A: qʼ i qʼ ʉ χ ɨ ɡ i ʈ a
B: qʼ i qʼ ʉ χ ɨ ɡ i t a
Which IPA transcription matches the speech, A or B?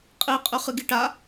A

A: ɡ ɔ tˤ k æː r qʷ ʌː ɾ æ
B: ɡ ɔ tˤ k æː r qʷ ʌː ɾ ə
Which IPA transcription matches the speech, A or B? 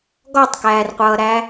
A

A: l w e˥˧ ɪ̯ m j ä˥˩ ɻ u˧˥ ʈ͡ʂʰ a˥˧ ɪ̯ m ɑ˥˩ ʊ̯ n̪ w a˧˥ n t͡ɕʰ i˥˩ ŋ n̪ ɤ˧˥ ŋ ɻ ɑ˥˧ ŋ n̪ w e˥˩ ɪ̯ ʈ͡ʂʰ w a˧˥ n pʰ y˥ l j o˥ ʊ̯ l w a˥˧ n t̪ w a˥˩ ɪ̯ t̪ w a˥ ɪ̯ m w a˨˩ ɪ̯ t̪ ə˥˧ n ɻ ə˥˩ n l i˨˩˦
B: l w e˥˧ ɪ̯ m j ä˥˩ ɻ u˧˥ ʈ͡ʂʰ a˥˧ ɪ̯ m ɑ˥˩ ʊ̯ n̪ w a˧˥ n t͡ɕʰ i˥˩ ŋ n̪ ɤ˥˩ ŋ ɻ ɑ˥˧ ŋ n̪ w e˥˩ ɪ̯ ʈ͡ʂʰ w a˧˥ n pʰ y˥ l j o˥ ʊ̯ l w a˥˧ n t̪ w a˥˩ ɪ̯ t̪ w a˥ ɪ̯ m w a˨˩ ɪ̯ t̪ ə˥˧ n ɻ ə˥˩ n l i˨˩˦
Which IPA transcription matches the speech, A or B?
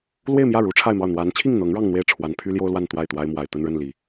A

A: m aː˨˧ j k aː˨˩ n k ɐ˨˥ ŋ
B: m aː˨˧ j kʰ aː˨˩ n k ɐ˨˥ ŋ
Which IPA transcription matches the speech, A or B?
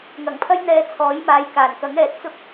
A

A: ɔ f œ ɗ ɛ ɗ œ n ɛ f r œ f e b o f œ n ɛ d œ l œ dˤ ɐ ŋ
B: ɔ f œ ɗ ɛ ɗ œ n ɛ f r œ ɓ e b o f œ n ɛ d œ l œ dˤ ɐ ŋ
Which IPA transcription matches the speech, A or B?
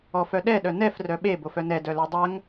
B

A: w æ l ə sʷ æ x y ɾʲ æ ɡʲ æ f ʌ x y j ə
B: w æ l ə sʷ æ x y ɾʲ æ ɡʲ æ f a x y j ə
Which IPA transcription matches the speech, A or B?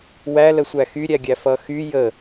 A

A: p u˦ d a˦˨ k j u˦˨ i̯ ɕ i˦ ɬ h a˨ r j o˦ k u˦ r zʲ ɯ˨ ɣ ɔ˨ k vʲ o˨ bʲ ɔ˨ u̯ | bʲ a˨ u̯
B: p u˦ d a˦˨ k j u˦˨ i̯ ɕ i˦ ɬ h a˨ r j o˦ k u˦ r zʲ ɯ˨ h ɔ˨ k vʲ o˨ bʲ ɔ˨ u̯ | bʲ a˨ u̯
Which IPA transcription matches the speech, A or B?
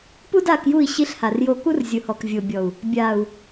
B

